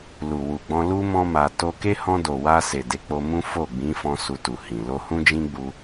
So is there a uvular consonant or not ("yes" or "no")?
no